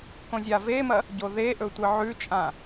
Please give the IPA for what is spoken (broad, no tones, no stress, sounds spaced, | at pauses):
k õ zʲ a v e m ɐ | ɟ o ð e ʔ ɵ tʷ ɨ ʕ ʉ t͡ʃʼ ã